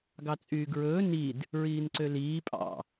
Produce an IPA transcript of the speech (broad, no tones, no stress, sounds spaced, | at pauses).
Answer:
ɡ ɑ t͡sʼ yː ɡ ɹ ɵː n i d | ɹ iː n ǀ ø l iː pʼ ɑ̰